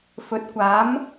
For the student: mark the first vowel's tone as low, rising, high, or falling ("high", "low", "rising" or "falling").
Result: low